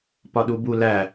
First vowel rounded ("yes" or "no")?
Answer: yes